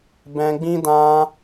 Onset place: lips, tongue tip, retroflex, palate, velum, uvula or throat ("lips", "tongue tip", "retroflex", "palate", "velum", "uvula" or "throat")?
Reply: lips